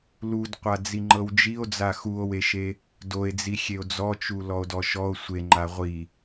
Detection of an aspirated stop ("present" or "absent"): absent